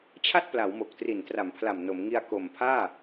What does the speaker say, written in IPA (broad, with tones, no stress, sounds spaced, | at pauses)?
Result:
t͡ɕʰ a˥˩ t̚ p l a˩˦ w m o˨˩ k̚ t r i˨˩ n t r a˩˦ m pʰ l a˨˩ m n o˩˦ m ŋ i˧ a̯ k o˨˩ m pʰ aː˥˩